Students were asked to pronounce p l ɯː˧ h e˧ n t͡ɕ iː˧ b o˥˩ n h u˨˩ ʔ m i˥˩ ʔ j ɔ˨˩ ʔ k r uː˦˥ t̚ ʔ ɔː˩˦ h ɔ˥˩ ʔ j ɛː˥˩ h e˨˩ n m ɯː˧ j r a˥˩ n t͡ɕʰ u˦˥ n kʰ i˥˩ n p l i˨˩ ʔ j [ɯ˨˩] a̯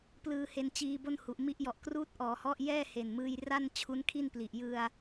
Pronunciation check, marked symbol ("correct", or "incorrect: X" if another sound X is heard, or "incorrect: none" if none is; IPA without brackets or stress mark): incorrect: ɯ˧